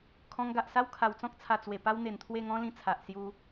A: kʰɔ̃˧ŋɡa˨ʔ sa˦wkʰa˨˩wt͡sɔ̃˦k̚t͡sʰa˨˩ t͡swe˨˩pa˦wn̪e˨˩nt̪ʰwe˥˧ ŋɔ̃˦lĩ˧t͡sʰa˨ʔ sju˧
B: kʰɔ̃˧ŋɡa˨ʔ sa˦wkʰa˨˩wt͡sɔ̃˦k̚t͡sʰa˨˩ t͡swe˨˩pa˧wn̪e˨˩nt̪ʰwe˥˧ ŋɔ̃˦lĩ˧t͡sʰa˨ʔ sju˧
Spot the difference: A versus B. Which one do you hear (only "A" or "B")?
A